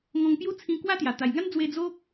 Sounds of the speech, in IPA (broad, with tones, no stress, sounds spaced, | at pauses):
ŋ ɔ̃˧ ŋ p j u˦ t͡sʰ ĩ˧ k w a˦ t̪ j a˨˩ t̪ a˨˩ j ŋ a˦ n d͡z w e˧ d͡z o˦ k̚